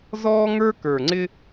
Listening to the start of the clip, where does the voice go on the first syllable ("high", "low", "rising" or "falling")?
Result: high